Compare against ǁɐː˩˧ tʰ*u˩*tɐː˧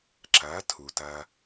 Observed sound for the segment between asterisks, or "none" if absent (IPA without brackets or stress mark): u˩